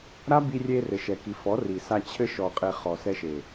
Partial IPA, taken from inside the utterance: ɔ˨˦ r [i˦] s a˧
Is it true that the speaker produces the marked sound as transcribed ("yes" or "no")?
no